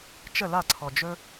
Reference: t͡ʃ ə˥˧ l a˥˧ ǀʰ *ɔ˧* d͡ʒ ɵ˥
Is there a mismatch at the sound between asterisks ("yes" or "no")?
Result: no